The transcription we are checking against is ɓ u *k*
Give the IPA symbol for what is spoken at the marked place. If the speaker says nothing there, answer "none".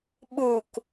k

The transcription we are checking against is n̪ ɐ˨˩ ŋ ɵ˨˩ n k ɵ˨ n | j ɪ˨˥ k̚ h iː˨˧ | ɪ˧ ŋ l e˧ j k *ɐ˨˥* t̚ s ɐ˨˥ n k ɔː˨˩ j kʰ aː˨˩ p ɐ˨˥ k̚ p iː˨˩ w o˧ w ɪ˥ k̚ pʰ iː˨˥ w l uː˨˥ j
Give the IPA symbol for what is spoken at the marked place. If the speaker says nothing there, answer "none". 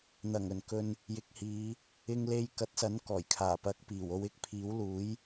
ɐ˨˥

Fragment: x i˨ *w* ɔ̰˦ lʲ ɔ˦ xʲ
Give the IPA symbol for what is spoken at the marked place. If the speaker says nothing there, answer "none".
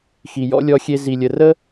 j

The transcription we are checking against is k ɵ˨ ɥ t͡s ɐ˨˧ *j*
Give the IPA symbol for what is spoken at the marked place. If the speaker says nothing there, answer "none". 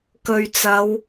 w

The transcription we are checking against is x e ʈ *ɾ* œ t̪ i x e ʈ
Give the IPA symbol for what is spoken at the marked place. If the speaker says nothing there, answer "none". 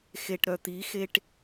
ɾ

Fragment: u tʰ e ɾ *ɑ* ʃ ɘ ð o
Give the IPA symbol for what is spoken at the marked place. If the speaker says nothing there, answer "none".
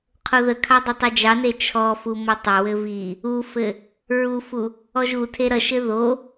ʌ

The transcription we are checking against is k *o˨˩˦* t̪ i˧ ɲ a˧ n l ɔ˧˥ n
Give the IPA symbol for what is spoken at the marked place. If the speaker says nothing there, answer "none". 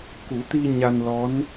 u˨˩˦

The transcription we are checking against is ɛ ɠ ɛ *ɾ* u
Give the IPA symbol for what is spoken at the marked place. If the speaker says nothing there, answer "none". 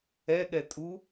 tʼ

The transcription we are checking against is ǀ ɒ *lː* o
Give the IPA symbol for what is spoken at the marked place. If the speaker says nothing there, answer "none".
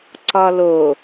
l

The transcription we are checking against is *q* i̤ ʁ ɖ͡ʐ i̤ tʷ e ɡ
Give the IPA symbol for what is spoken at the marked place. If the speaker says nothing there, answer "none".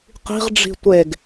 q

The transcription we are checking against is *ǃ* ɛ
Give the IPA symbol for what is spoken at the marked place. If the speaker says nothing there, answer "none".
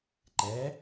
ǃ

